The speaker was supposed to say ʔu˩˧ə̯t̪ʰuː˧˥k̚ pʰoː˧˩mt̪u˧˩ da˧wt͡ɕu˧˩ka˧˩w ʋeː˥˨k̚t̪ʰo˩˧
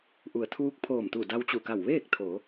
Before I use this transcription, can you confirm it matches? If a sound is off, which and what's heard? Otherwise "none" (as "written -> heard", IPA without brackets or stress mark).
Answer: none